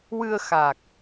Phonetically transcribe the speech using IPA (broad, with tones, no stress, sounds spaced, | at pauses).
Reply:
w ɨ˧ ə̯ x a˨˩ k̚